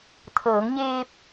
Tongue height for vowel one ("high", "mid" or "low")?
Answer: mid